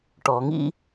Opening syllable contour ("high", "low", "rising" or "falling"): low